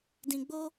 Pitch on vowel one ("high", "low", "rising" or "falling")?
low